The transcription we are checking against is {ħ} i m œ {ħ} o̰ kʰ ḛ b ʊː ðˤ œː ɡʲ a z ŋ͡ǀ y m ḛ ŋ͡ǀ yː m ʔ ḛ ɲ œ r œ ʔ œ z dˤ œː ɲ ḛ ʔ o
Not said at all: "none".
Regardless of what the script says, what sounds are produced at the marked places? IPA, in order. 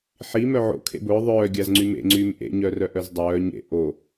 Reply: ħ, ʕ

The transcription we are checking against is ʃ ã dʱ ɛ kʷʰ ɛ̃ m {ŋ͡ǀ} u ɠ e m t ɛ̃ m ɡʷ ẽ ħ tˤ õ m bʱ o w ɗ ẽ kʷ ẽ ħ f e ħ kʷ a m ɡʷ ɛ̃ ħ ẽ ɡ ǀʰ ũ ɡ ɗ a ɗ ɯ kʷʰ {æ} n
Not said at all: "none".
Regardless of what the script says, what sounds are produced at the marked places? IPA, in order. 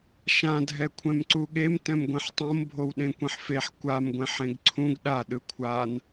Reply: ǀ, a

